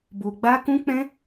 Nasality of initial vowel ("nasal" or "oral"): oral